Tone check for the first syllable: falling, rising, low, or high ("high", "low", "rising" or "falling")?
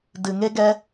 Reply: low